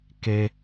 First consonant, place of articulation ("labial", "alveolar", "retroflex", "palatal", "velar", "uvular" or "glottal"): velar